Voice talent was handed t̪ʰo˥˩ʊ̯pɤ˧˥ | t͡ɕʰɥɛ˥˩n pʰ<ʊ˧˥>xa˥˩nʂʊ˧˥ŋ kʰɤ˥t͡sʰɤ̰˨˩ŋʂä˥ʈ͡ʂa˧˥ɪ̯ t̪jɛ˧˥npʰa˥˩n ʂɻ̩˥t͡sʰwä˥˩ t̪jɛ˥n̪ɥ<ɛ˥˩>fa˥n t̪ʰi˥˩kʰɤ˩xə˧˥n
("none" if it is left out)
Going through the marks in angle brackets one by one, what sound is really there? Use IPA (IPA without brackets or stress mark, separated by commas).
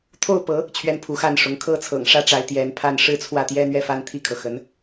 u˧˥, ɛ˥˩